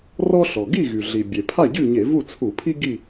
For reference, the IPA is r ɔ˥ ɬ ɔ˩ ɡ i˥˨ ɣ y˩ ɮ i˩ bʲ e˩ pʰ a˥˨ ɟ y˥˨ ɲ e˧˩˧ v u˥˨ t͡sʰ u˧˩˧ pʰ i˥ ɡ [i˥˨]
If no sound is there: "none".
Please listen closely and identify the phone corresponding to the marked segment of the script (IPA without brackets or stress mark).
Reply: i˥˨